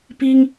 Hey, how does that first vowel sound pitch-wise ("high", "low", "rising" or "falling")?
high